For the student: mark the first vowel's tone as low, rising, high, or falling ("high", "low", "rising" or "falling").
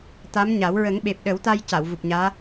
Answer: rising